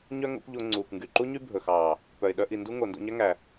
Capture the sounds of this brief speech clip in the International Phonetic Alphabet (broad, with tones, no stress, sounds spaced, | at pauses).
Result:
ɲ œ˦ ŋ o̰˦ kʷ ʎ o˧ ŋ͡ǀ uː˨ kʷ ŋ ɡ y˨ ǃ u˦ ɲ y˦ bʱ ɵ˨ x ɑː˨ | p œ˨ ɪ̯ ɗ œ˧ ʔ i˨ n d u˦ ŋ o˨ n d o̰˧ ɲ æ˦ ŋ æ˨